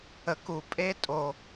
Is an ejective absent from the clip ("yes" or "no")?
no